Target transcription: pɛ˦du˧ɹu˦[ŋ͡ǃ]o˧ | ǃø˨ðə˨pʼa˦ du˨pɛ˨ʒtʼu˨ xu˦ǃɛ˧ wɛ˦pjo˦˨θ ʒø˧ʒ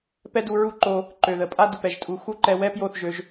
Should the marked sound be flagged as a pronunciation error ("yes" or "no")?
yes